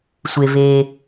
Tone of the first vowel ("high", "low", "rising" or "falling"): low